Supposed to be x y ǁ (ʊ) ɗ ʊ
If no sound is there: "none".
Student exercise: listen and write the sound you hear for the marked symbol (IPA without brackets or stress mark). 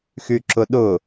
ʊ